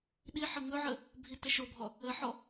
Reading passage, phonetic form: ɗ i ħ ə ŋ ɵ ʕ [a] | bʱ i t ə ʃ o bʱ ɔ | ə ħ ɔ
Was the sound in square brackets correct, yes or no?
no